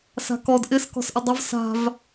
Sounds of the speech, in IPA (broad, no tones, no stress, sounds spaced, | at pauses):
s a̤ k ɔ d ʔ ɪ s k ɔ̤ s ʔ ɪ dˤ ʊ v s a̤ v